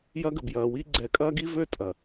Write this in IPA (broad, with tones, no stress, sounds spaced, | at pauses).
j ɐ˦ ɡ ə˨ b j ɐː˨ w i˦ ɡ͡ǀ ɛ˨˦ kʼ ɐː˦ ɡ i˦ v ø˦ tʼ ɐ˨